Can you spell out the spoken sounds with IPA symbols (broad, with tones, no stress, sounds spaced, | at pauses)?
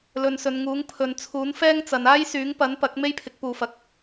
l ɵ˨ n s ɵ˨˧ n ŋ uː˨˥ ŋ pʰ ɵ˨˧ n t͡sʰ uː˨˥ n f ɛː˥ ŋ t͡s ɐ˨˧ n aː˥ j s yː˨˥ ŋ p ɐ˨˥ n p ɐ˨˥ k̚ m e˥ j pʰ ɪ˨˥ k̚ p uː˨˧ f ɐ˨˥ k̚